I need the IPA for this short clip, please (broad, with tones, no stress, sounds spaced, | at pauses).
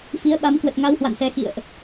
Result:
f i˨˦ ə̯ ɓ a˨˦ m k w ə˨˩ t̚ ŋ a˧ w h w a̰˧˨ n s ɛ˨˩ x ḭ˧˨ ə̯ ʔ